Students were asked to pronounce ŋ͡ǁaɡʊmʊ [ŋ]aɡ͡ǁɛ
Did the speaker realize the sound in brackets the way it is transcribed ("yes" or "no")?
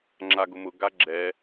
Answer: no